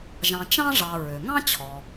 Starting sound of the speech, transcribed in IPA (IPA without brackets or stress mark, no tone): ʒ